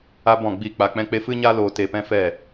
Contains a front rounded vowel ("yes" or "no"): no